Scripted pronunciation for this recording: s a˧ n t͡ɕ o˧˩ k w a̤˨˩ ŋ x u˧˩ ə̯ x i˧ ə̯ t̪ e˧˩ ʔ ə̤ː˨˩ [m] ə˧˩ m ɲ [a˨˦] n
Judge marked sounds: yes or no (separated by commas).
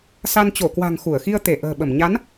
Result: no, yes